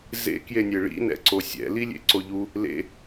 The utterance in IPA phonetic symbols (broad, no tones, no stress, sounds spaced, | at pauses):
z ḛ k j e nʲ e ɭ ḭ n ɛ̰ ǀ o sʲ ɛ̰ l i lʲ ḛ ǀ o ʎ u | l ḛ